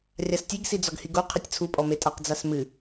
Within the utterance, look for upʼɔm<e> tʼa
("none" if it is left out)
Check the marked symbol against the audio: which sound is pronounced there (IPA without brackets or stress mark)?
e